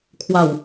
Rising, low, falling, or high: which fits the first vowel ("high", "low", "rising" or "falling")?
low